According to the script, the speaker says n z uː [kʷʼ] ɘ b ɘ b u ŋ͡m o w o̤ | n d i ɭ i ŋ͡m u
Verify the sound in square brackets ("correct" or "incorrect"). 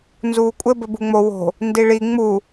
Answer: correct